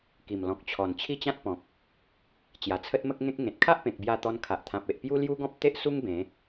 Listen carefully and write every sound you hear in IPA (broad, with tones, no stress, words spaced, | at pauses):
ki˨˩mlɔ̃˨k̚t͡ɕʰɔ˨˩n t͡ɕʰi˥˧t͡ɕã˦t̚pɔ̃˨k̚ | t͡ɕja˨˩t͡sʰə˦t̚mə˦k̚ŋẽ˦k̚ ŋẽ˨t̚kʰa˦ʔpẽ˨k̚bja˧ t̪ɔ˧nkʰa˨ʔt̪ʰã˨p̚e˨ʔ pju˦lju˦ɡɔ̃˦p̚ t̪e˦ʔsu˦ŋ bẽ˨˦